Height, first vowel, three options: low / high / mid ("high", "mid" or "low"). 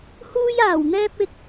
high